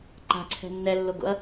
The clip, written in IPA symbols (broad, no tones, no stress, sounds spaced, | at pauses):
ǃ a̤ ǀʰ ɛ̤ nː ɛ lː o ɡ o̰ ɐ̯